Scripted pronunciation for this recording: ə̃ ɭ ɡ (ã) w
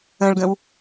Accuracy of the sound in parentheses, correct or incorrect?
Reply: incorrect